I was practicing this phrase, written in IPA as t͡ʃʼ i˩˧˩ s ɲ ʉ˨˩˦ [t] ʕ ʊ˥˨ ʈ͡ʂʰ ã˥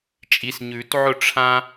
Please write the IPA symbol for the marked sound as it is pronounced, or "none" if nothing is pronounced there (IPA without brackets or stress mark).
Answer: t